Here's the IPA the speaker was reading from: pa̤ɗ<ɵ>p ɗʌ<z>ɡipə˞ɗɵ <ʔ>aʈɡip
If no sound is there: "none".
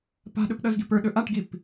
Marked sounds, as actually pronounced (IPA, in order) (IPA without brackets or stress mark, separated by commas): ɵ, z, ʔ